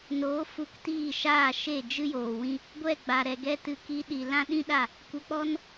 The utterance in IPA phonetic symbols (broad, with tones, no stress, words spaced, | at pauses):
noː˨˦fu˧ktiː˦˨ ʃaː˦˨ʃe˦˨ d͡ʒɨ˦joː˨wĩ˦ | ɡʷɛ˦˨ɡ͡ba˨ɾɛ˨ ɡɛ˦tɨ˧ ki˧ɗi˨ lã˦ɗĩ˦ɗa˦˨ | kʷə˧k͡pɔ˦n